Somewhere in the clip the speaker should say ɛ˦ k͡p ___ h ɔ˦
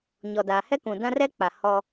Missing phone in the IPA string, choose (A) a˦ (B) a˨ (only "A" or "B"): B